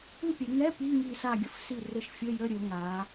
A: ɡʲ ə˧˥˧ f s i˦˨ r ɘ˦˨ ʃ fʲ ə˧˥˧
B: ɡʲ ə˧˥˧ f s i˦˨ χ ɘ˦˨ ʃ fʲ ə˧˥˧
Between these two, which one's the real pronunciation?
A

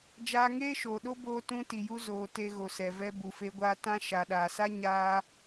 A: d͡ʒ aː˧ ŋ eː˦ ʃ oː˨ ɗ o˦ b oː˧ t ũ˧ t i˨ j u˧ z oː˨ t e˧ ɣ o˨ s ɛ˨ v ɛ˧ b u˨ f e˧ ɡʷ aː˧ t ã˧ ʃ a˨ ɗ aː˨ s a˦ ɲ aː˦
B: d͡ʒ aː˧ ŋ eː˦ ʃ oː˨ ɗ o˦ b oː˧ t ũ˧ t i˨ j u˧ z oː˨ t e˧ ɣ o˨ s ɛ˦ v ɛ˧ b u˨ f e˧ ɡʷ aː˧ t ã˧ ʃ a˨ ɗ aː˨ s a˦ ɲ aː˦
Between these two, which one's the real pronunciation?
A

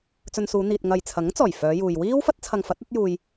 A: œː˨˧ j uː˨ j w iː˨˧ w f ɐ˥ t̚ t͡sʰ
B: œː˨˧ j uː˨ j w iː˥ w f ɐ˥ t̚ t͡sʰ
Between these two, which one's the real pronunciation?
B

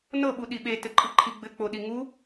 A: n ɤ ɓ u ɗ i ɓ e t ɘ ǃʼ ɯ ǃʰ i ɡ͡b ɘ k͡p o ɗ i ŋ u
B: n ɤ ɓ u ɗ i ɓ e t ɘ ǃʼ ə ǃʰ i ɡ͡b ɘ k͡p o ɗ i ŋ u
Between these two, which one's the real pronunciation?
A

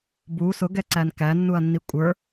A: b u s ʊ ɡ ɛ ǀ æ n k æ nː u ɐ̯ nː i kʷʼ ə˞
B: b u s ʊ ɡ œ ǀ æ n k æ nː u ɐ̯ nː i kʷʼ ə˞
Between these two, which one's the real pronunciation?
A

